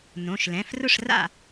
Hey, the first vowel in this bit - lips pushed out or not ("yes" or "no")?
yes